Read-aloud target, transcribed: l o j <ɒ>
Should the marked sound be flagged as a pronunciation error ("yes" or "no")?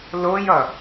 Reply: yes